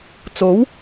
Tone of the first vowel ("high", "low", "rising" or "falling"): rising